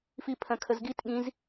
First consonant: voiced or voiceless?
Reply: voiceless